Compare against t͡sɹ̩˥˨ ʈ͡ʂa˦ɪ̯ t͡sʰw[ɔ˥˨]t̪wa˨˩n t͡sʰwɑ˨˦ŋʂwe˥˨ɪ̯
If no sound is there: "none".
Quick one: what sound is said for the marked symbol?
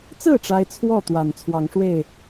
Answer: ɔ˥˨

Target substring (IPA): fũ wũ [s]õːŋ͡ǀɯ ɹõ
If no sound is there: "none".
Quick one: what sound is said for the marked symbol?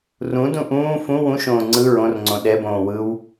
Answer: ʃ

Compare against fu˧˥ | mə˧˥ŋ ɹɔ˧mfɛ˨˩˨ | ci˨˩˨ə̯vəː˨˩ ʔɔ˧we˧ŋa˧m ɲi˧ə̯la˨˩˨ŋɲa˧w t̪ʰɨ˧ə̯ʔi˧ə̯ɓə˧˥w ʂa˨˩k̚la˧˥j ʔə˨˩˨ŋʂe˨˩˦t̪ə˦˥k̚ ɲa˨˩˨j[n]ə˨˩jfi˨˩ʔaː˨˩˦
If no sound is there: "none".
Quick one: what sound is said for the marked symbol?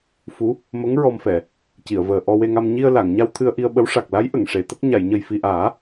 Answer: ɲ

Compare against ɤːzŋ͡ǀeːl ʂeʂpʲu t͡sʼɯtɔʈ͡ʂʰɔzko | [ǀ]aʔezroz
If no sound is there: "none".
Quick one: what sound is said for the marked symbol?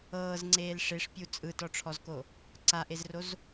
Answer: ǀ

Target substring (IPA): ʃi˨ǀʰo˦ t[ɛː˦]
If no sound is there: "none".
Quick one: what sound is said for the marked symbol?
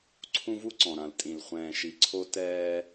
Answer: ɛː˦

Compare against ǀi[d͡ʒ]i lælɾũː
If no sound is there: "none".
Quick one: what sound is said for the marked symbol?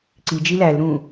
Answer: d͡ʒ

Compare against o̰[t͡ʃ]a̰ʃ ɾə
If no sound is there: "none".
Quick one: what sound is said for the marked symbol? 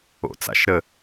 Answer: t͡s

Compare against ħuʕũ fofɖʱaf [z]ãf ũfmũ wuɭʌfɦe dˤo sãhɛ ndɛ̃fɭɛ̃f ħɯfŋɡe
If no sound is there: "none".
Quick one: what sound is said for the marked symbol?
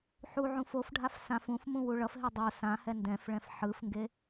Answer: s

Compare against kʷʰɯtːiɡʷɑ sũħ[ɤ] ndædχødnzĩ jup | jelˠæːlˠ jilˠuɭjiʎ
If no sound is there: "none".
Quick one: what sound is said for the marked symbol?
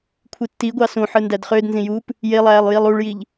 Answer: ɯ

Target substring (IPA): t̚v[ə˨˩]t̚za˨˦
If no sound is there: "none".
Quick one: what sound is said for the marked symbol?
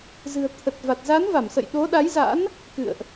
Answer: a˨˩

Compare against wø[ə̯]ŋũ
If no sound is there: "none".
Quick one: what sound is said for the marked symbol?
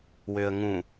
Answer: ə̯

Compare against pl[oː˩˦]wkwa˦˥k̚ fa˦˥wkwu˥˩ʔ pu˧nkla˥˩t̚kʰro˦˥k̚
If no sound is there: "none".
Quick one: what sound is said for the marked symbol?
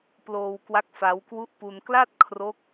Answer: oː˧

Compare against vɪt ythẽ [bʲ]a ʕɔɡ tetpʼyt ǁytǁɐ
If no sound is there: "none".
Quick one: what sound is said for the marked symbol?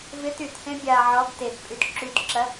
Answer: bʲ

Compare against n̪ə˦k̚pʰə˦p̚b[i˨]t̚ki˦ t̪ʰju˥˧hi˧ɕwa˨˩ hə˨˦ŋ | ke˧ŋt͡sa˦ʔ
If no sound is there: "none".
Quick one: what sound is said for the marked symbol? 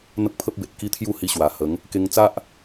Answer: e˨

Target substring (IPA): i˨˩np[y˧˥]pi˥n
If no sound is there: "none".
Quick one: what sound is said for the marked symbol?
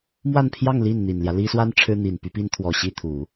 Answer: y˧˥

